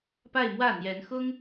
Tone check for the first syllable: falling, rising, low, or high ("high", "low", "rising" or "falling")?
falling